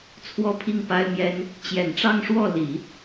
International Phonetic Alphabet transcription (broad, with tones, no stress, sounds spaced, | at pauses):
t͡sʰ w ɔ˥˧ pʰ i˥˩ ŋ p a˥ ɪ̯ m j ɛ˥ n | t͡ɕ j ɛ˨˩ n ʈ͡ʂ ɑ˥˧ ŋ ʂ w ɔ˥˩ l i˨˩˦